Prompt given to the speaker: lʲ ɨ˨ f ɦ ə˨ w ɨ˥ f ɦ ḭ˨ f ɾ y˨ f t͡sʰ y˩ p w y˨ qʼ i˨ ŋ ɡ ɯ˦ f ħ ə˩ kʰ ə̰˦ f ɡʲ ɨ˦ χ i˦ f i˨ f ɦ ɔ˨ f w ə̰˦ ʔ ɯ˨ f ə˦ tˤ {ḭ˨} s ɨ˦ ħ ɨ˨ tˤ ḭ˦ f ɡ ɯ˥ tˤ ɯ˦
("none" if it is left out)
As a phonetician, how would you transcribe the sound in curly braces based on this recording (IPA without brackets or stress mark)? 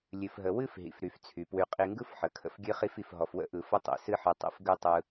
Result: ḭ˨